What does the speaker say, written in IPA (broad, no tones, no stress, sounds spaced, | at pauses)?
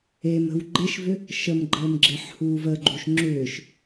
e m ə̤ w ɡ͡ǃ e ʃ v ʏ | ʃ ə m ɡ͡ǃ əː m ɡ͡ǁ e ħ h uː v ə ɡ͡ǃ u ʃ ŋ͡ǁ ʏː ʃ